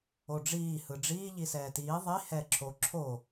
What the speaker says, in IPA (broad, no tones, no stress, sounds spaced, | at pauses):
o ɖ͡ʐ iː h ɯ ɖ͡ʐ iː ʎ i s ɛː t iː ðˤ i h ɛː ǁʰ o ǁʰ o